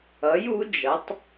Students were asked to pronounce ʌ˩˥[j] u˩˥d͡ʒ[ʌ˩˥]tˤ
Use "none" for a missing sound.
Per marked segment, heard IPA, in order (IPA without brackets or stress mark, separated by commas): j, ʌ˩˥